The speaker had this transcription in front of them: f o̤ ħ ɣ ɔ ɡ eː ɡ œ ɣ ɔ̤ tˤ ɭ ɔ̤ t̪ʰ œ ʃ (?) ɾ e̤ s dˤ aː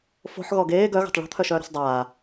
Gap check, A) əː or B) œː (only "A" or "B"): B